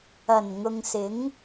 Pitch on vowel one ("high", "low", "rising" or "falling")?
low